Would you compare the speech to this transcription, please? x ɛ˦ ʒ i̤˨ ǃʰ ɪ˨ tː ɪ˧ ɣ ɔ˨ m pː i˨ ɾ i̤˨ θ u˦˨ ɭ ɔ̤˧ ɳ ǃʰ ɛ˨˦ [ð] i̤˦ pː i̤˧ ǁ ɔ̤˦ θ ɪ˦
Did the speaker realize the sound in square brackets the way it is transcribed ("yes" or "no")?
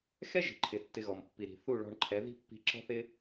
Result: yes